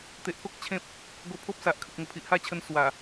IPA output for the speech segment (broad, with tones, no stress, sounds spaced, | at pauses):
t̪ e˨ ʔ pʰ o˦ k̚ t͡ɕʰ ẽ˦ p̚ | ɡ o˧ pʰ o˦ p̚ s a˨ ʔ kʰ ə˨ k̚ ŋ ə˨˩ pʰ i˨ ʔ h a˥˧ t͡ɕʰ ə˧ n s w a˨˩